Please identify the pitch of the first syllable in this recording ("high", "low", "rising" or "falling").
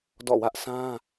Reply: falling